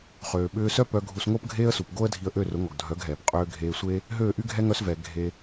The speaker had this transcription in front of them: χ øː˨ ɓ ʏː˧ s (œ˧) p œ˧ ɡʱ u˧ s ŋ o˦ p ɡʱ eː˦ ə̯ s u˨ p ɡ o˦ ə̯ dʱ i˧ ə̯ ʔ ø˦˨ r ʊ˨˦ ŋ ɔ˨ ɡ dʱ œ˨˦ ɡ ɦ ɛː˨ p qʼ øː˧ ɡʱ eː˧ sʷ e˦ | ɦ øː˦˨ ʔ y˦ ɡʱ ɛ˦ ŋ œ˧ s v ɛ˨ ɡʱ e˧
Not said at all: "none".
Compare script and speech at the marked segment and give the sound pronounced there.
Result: œ˦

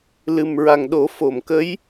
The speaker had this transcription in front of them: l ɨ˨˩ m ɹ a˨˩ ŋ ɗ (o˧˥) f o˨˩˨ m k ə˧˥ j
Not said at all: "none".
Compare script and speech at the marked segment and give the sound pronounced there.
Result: o˨˩˦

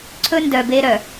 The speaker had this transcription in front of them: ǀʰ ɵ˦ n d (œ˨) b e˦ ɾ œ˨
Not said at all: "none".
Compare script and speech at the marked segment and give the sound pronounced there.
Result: œ˨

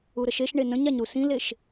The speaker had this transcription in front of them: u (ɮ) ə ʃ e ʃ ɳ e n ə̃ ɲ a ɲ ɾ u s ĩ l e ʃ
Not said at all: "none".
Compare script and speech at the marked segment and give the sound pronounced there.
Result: ɾ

